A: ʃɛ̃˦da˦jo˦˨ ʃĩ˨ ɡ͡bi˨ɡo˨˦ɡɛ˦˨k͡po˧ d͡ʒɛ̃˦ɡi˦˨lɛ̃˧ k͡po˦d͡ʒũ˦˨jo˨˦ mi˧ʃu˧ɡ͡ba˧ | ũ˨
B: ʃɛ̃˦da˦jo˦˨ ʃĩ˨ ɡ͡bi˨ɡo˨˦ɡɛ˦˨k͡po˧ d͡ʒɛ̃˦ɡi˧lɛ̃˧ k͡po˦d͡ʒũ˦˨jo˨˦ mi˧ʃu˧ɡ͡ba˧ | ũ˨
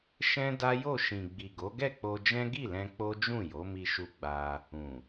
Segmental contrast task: A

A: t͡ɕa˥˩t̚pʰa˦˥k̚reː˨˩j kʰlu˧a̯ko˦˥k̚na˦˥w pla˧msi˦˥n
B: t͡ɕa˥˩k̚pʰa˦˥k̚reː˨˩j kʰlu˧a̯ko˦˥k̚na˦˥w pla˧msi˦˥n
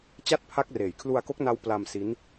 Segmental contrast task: A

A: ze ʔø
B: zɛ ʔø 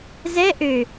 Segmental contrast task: B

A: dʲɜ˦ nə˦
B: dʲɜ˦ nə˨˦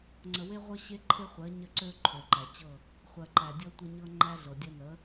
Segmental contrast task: B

